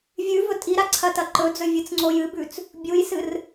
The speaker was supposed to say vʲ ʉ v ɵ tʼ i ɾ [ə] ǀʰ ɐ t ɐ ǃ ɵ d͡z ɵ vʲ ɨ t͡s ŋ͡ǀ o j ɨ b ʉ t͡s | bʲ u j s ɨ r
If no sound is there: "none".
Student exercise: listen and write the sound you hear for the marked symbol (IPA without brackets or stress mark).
a